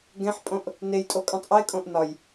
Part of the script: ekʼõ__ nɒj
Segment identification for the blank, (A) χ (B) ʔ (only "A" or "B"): B